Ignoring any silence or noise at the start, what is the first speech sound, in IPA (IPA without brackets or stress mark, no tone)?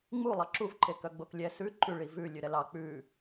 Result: ŋ͡m